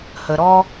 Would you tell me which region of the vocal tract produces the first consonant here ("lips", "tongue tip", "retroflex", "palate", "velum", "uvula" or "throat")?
throat